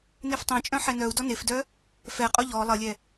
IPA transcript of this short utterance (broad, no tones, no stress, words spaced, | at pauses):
neftˤẽt͡ʃʼœ̃ ħɛnœu̯dɔ nefdœ | fɛqʼo ʎɔ lˠəlʲɛ